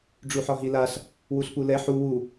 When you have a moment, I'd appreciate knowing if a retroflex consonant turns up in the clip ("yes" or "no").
yes